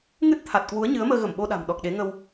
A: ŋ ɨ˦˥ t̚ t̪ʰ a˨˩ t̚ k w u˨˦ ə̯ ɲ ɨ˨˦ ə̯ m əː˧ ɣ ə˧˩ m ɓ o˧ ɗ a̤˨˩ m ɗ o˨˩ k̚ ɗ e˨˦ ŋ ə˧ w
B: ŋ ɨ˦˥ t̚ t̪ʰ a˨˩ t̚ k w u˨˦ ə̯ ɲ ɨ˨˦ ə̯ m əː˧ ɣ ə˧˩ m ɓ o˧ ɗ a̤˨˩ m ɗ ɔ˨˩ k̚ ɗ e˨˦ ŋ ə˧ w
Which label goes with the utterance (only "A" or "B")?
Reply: B